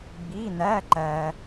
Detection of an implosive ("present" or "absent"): absent